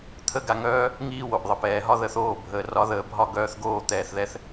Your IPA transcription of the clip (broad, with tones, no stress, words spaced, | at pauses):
t̪ʰə˥ ɡa˧ŋœː˥ | ŋiː˧wo˩ʔ ðˤə˩pɛː˩ɦɒ˥ ðə˧θoː˥˩ bʱəː˩rɒ˩˥ðəː˩bʱɒ˥˩ ɡœː˧θɡoː˥˩t̪ɛː˩θðɛ˧θ